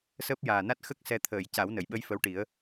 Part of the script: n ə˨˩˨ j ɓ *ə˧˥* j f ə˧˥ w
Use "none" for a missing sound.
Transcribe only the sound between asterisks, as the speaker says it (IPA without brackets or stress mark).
ə˧˥